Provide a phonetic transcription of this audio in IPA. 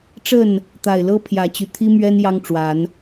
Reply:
ʈ͡ʂ ə˥˨ n | t̪ a˨˩ ɪ̯ l ɤ˦ pʰ j ä˨˦ t͡ɕ y˨˩ t̪ʰ i˦ m ɥ ɛ˦ n j ɑ˦ ŋ ʈ͡ʂ w a˨˦ n

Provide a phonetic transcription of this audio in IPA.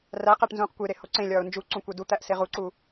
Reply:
r æ q æ ʈ n z ũː q kʷ e ɾ e h o ǀ ẽ lʲ ɒː ʊ̯ n d͡ʒ u ǀ ũ kʷ e d u t̪ æ ʔ s e ʁ u ǀ u

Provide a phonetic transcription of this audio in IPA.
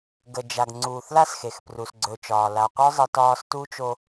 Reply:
ɡ ə˨ d͡ʒ a˨ ɡ ŋ͡ǀ uː˨ θ l a˦ s x e˨ x p r u˨ s ɡ͡ǀ ɵ˨ t͡ʃ ɒː˨ l a˨ qʷ œ˦ zˤ ə˦ t ɒː˦ s t uː˦ t͡ʃ o˦

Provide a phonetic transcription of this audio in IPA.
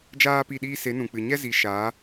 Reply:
d͡ʒ aː˦ p i˦˨ ɗ iː˦ s e˨˦ n ũ˨ k͡p ɨ˨ ɲ ɛ˦ z i˨˦ ʃ aː˨˦

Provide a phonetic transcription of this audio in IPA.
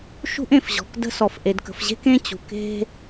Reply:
ʃ ṳ˥ ʔ ẽ˩ f ʑ ɔ̤˩ k d ə̤˥ s ɔ˩ f ʔ e˩ d k ə̤˩ f ʑ e̤˥ k ẽ˥ t͡ɕ ṳ˩ k e̤˥

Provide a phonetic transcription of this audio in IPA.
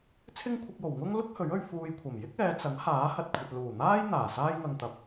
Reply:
t͡sʰ ɪ˥ ŋ kʷʰ ɪ˧ k̚ j o˨˩ w ŋ ʊ˥ ŋ l ʊ˥ k̚ h ɵ˨˥ ɥ ɵ˧ ɥ f uː˧ j kʷʰ ɐ˨˩ m j ɪ˥ k̚ ɛː˨˧ t͡s ɐ˨˥ ŋ h aː˨˥ h ɐ˨ t̚ kʷʰ ɐ˨ t̚ l uː˨˩ n̪ aː˥ j n̪ aː˨˩ s aː˥ j ŋ ɐ˧ ŋ t̪ ɐ˨˥ p̚

